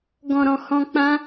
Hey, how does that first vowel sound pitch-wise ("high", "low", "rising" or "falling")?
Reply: low